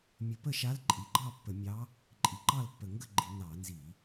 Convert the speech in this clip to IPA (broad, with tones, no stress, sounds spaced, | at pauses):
mʲ ə˧˩˧ p ə˥˨ ʃ a˧˥ l ǃʼ i˨˩ ɡ͡ǃ ɑ˥˨ pː ə˧˩˧ mʲ ɑ˧˥ | ǃʼ i˨˩ ǃ ɑ˥˨ l pː ə˨˩ ŋ ɡ ə˥˨ ɡ͡ǃ i˧˩˧ n ɑ˧˩˧ n z i˧˩˧